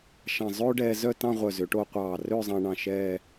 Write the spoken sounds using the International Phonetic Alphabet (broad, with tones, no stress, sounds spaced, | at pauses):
ʃ ɑ̃˧˩ zˤ øː˥ ɖ ɛː˧ z œ˥˧ t ɑ̃˥˧ ʁʷ œ˧˩ z ø˩˧ ʈ o˧ qʷ ɑː˧˩ r øː˥˧ zˤ ɑ̃˧ ɳ ɑ̃˧˩ ʃ ɛː˥˧